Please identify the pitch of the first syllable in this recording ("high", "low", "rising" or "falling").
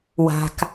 low